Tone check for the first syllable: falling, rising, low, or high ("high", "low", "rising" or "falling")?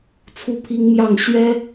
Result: falling